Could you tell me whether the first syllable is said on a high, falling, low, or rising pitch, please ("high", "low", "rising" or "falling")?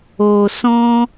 low